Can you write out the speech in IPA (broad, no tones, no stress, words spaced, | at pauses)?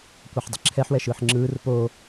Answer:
kʷʌħdˤɯǁʰɛħ wɛʃɯːħŋ͡ǁɯːr po